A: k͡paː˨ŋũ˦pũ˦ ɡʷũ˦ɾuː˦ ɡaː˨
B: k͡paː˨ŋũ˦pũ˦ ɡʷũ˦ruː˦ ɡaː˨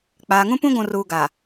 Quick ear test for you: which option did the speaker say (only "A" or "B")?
B